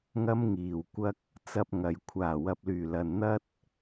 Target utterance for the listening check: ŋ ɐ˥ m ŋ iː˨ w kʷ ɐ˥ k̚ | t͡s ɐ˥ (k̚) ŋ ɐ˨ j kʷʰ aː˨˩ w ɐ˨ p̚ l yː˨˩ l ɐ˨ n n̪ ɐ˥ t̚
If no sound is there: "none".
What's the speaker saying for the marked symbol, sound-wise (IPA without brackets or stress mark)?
p̚